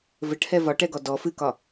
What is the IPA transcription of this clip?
vɘʈhɛ vɒʈɛɡɔ dɔ fɨkɒ

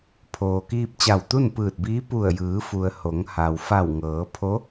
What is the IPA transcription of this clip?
pʰoː˩kiː˧p̚ t͡ɕa˧˩wt̪u˥˨npɯː˧˩t̚biː˧˥ pu˧˩ə̯jɯː˩˧fu˩ə̯ ho˩˧ŋha˩w fa˧˩wŋɤː˩˧ pʰo˧˥

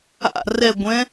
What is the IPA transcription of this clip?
a̰ rɛɡʷɛ̃

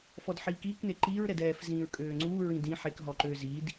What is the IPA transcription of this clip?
fɔdħiːkiːkne ǃiːɹɾɛd ɛːf zĩːɹkʼøːŋ͡ǀuː ɹĩdĩ ħekɦɔǃøː zid

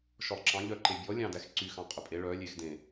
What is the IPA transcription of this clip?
ʃɔlˠǁɑ̃ ʎœǃebʲɔ lʲɑ̃dæxǀy xɑ̃qʼœpʼe ɭœ lʲex dẽ

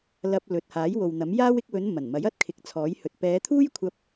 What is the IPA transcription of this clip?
lɐ˧p̚lɵ˨t̚ haː˨˥jwo˨wn̪ɐ˨˥mjaː˥w ɪ˧k̚wɵ˨˧n mɐ˨˩nmɐ˨˥j ɐ˥t̚kʰɪ˨k̚t͡sʰɔː˨˥jhɵ˨t̚ pɛː˨˧t̪ʰuː˥j kʷʰɐ˥p̚

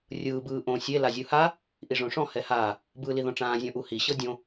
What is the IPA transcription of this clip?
rʲɯː bɯːʔõ sʲe lazʲɯha | ʔiʐõʂɔ̃ hɛhaː | bɯːliðɔ̃ʈ͡ʂãː zʲɔ̃ʔuhi ɕɤdʲõ

